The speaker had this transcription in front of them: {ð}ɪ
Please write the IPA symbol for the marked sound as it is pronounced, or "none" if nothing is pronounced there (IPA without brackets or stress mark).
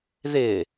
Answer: ð